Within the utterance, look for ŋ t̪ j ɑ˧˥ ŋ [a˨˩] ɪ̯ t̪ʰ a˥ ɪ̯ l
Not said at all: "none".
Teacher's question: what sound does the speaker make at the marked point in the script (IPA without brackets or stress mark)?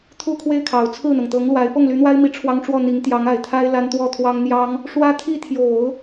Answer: a˨˩